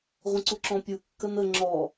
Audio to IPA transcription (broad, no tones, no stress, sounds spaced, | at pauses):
ʁʷ ə̃ ǀ u ǁ ɔ̃ pʲ u kː ə n ə ŋ͡ǁ ɔ